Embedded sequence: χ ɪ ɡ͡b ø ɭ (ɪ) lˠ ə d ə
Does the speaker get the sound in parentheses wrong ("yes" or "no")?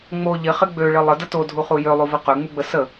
no